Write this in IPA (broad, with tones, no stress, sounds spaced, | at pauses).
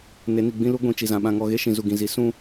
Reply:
n e˨˦ n i˨ ɡ͡b ĩ˦ l u˦ ɡʷ ĩ˨ t͡ʃ i˨ z ã˨ ɓ ã˨ ŋ ɔ˨ ɣ e˦ ʃ ĩ˨ z u˨ ɡ ĩ˨ z i˨˦ s ũ˦